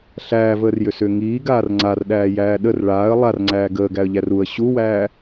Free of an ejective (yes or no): yes